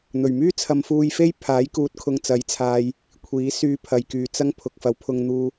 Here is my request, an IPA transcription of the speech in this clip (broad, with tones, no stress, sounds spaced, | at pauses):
n̪ ɵ˨˩ ɥ m yː˥ t͡sʰ ɐ˧ m f uː˧ j f e˥ j pʰ aː˨˥ j k uː˧ t̚ kʰ ʊ˧ ŋ t͡s ɐ˨˥ j t͡sʰ aː˧ j | kʷʰ iː˨˥ s yː˧ pʰ ɐ˨ j k yː˨ t͡s ɐ˥ ŋ pʰ ʊ˨ k̚ f ɐ˨˥ w pʰ ʊ˧ ŋ n̪ uː˧